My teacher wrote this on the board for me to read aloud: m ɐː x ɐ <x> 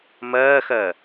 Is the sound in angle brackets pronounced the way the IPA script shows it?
no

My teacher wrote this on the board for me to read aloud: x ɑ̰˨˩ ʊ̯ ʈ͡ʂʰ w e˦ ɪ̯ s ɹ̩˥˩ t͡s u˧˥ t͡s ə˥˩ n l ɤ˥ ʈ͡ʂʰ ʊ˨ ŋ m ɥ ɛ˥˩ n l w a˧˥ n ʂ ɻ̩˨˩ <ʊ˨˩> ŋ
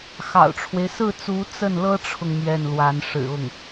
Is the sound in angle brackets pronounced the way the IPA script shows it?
no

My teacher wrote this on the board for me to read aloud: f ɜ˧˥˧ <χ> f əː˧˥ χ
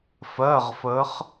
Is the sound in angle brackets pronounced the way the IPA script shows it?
no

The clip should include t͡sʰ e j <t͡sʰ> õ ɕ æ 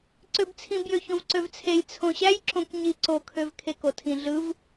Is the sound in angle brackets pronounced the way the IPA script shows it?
yes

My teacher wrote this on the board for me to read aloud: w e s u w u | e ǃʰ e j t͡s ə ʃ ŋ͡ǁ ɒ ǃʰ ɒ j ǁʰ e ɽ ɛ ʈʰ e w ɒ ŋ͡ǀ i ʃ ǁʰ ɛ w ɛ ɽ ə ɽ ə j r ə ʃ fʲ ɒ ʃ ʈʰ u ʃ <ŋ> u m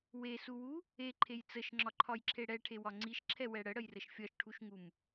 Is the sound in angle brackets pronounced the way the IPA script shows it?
yes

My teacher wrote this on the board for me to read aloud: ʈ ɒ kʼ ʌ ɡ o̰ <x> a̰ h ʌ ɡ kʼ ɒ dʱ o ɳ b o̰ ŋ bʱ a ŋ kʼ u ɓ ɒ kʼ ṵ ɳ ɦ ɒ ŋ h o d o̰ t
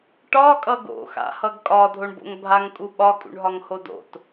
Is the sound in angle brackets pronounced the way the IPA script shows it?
yes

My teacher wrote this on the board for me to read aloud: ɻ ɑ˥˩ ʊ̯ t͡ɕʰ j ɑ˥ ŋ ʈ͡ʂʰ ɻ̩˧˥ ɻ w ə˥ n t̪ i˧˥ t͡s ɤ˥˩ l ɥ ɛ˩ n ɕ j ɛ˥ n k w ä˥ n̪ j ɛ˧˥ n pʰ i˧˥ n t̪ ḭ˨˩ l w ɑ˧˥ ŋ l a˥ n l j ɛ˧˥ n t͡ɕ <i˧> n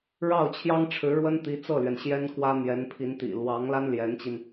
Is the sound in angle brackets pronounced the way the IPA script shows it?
yes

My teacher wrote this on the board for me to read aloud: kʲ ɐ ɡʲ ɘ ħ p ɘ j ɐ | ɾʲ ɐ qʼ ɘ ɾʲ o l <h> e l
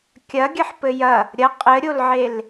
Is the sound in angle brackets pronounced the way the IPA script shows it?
no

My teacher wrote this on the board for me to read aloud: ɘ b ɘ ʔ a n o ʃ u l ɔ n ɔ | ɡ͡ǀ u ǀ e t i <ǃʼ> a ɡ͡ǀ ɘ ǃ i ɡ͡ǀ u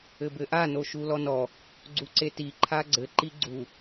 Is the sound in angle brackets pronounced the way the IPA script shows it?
no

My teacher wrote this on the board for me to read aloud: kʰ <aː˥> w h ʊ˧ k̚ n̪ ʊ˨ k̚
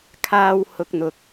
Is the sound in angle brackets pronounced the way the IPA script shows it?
yes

